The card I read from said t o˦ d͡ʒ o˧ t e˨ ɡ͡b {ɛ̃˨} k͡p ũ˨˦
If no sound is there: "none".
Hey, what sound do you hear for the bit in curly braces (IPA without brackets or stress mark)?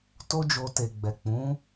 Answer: ɛ˨